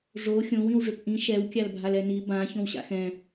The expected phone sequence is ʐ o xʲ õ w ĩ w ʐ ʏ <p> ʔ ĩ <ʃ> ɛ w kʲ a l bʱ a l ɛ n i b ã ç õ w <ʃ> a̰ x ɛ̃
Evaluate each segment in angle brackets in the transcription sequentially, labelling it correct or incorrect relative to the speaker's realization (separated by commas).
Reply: correct, correct, incorrect